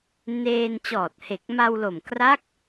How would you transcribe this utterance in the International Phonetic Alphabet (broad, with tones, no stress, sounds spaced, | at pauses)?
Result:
n eː˧ n t͡ɕ ɔː˨˩ t̚ h e˨˩ k̚ m a˧ w l o˨˩ m k r a˦˥ k̚